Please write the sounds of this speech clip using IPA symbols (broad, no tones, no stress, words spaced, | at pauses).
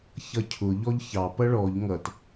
çʌcʰʊ ʎɔʎçɑ pʌɭɔʎ ŋʌt